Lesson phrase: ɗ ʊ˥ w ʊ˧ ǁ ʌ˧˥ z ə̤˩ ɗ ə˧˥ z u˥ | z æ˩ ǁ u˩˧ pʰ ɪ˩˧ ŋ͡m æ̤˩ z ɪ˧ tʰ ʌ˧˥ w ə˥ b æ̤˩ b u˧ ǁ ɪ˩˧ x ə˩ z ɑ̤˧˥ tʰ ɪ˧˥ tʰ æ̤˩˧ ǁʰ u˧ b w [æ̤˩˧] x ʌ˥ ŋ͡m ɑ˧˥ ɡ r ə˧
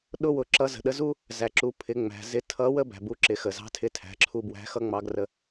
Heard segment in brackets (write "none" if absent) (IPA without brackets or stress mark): æ̤˧˥